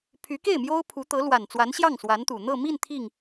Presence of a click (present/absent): absent